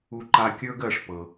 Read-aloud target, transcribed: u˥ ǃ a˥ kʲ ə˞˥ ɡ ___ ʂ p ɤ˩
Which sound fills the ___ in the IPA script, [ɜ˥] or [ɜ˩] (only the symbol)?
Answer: ɜ˩